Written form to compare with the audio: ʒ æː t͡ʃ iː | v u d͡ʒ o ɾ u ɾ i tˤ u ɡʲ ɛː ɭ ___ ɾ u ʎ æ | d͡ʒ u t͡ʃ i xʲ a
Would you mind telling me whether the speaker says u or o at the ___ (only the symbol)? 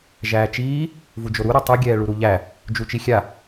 u